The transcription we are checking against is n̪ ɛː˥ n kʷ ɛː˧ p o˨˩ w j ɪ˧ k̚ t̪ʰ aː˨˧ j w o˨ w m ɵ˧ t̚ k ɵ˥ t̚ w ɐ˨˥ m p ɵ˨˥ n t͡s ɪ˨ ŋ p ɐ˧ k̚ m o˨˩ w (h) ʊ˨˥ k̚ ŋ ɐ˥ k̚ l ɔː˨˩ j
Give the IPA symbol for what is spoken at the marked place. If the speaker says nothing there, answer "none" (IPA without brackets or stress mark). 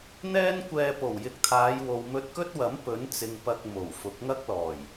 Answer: f